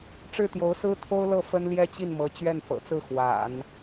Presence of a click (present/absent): absent